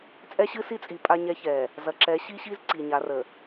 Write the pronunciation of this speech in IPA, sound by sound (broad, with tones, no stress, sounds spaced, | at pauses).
t͡sʼ ɛ˦ ɕ ɨ˦ s i˦ t͡sʼ i˨ pʼ a˦ ɲ ɛ˦ ç ɛ˨ | z ɐ˨ ǁ ɛ˨˦ ɕ i˦ ɕ i˦ z ǀ i˨ ɲ a˨˦ r ə˨